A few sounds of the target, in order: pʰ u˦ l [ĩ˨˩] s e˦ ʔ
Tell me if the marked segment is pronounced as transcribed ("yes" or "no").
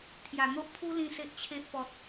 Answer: no